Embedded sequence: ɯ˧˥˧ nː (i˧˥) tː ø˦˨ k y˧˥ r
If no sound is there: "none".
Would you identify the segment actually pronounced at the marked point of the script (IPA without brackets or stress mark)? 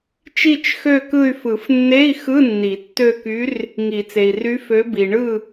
i˨˩˦